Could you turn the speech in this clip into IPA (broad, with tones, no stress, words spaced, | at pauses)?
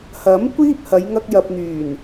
hɐ˨˥m kʷiː˥p̚ hɐ˨˧jŋɐ˧k̚jɐ˨p̚n̪yː˨˩n